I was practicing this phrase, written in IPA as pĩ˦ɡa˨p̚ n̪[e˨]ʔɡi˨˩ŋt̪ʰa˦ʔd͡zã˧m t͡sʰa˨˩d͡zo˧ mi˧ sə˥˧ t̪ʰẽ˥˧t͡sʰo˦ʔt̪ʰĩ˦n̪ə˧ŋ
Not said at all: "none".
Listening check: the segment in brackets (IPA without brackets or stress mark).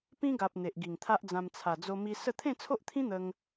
e˨